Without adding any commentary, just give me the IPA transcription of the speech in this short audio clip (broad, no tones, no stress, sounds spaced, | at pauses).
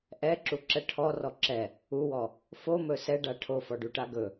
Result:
ʔ ɛ ǁ u ǁ ɛ ʈʰ ɔ r ɔ ǁ ɛ | u w ɔ | f o m ɵ s ɛ ɖ a ʈʰ o f ɔ ɖ u ʈ a ɡ ɵ